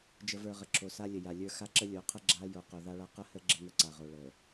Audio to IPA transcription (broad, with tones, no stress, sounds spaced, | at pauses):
d͡ʒ ə˨ v ə˞˨ ʁ ə˨ ǁʰ o˨ s a˦ lʲ ə˨ j a˨ lʲ ə˞˦ x a˦ ǁ ə˦ lʲ o˨˦ qʰ ə˦ ɡ͡ǁ a˦ j o˨ q o˨ ð a˦ ɭ a˦ q ə˦ h ə˦ ɡ͡ǁ ə˦ ŋ ə˦ ǀ a˨ ʁ o˨ ɭ ə˨